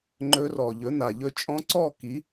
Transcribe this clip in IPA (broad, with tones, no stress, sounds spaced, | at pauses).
ŋ͡ǃ ɵ˦˥ r ɔ˨ ʎ ɵ˨˥ n̪ a˨ ʎ ɵ˦˥ t͡ʃʼ ɔ̃˦˥ ǀ ɔ˥˧ k i˨˥